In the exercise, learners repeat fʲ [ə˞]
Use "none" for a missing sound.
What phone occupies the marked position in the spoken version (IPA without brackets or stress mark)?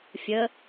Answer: ə